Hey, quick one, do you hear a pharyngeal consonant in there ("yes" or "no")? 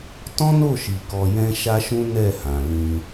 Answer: no